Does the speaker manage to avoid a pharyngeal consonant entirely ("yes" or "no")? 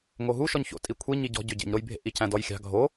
yes